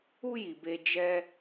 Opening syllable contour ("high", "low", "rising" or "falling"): high